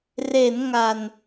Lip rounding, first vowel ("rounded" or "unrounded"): unrounded